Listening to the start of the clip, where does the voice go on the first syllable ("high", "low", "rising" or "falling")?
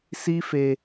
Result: high